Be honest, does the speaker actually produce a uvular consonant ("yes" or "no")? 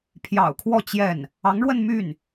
no